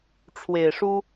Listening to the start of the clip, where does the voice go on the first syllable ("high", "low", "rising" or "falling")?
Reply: low